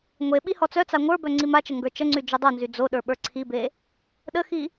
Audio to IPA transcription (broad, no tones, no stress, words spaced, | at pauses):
ŋʷe ɓihɔt͡sœt͡sa ŋʷə˞bœ ŋ͡ǀimat͡ʃə ŋɡə˞t͡ʃəŋ͡ǀy d͡ʒœdˤonzy d͡zoɗə˞ ɓə˞ǀʰibe | ɗəxi